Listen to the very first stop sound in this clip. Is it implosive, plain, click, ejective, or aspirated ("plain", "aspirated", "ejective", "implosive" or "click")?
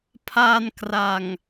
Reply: aspirated